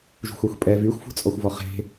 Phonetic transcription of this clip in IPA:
ʒṳxʷaxʷpʼɛ vyxʷfṳt͡sʼɔxʷvɔ χe̤

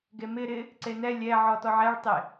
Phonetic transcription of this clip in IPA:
ɡemɪ ɾɪ | ǀenɛ lʲɛ ʕɔtɔʕɛɭ tˤɪ

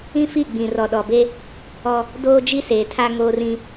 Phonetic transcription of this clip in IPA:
ĩ˦fi˦˨ɡ͡bĩ˨ rɔ˨ɗɔ˨be˦ | ɔ˦ | doː˦ d͡ʒi˦seː˨tʰa˦ ŋoː˦rĩ˦

